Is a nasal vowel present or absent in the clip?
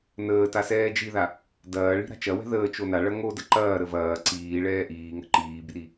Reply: absent